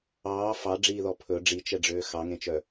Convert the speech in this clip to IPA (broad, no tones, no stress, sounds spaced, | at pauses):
ɑː f ɑ ɖ͡ʐ iː ð ɔ pʰ ɵ ɖ͡ʐ i t͡ʃ ɛ ɖ͡ʐ øː x ɑ ŋ ẽ t͡ʃ œ